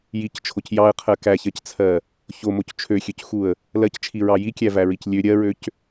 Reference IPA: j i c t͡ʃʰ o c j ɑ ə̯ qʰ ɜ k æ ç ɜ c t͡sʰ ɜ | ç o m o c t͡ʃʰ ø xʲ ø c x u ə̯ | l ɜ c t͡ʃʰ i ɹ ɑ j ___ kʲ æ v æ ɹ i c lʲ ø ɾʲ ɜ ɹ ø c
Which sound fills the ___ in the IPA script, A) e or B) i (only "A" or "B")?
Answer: B